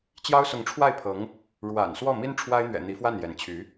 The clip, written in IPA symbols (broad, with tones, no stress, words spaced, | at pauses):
t͡ɕjɑ˥ʊ̯sʊ˧˥ŋʈ͡ʂʰwa˥˩ɪ̯pʰɤ˧˥ŋ | ɻwa̰˨˩n swɔ˥˩mi˥n ʈ͡ʂʰwa˥ɪ̯n̪ɥɛ̰˨˩ n̪i˧˥fwa˥˩n jɛ˧˥nt͡ɕʰy˧˥